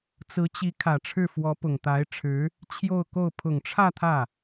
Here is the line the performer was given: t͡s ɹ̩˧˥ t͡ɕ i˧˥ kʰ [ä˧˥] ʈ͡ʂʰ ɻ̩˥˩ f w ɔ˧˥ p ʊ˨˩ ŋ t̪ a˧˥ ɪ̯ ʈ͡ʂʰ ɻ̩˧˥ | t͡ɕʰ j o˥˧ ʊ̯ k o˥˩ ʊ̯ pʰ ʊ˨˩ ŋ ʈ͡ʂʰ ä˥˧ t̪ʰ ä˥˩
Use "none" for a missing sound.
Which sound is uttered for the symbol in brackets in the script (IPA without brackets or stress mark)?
ä˨˩